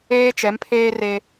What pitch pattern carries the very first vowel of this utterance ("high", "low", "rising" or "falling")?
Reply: high